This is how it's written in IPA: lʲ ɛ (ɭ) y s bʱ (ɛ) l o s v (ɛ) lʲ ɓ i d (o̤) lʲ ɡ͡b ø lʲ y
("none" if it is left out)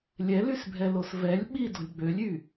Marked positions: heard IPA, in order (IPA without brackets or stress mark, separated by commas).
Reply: l, ɛ, ɛ, o̤